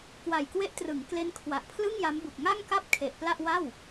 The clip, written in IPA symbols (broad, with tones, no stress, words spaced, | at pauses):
kwa˨˩jkwe˦˥ʔtrɯ˩˦ŋ kle˦˥nkʰwa˨˩ʔpʰlɯ˥˩ŋ ja˦˥mbu˨˩k̚ ŋa˥˩ŋka˥˩p̚kʰe˨˩ʔ pla˥˩ʔwa˥˩w